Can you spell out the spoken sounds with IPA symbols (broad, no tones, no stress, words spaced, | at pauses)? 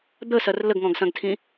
d̪əsɐr ləɡŋɔ̃ɡsɐ̃ɡtʰĩ